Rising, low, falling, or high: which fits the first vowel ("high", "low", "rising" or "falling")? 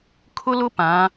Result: high